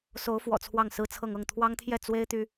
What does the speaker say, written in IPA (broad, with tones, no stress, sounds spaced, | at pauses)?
s o˧˥ ʊ̯ f w ɔ̰˨˩ t͡sʰ w ɑ˥˩ ŋ s ɹ̩˥ t͡sʰ ɤ˥˧ ŋ ɤ˥˩ ŋ t̪ʰ w ɑ˥ ŋ t̪ʰ j ɛ˥˩ t͡s w e˥ ɪ̯ t̪ y˥